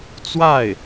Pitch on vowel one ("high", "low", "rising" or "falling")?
falling